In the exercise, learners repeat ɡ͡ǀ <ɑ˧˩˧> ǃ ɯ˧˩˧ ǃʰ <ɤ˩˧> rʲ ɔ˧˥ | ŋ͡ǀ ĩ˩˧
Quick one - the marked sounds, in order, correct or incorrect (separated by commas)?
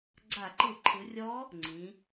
incorrect, incorrect